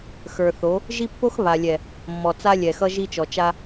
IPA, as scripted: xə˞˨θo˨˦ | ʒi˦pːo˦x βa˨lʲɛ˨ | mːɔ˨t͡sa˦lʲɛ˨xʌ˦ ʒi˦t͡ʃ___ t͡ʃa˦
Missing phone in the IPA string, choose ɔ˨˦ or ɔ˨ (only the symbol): ɔ˨